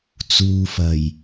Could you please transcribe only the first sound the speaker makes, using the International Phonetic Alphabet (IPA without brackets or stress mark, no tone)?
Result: t͡s